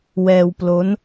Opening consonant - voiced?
yes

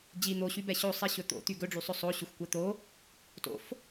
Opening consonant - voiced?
yes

